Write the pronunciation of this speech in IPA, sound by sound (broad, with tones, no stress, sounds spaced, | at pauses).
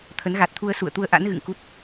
t̪ʰ ə˨˦ n ɣ a˨˩ t̚ t̪ʰ u˧ ə̯ s ṵ˧˨ ə̯ t̪ u˧ ə̯ ʔ a̰˧˥ n ɣ ɨ̰˧˨ ŋ k u˦˥ t̚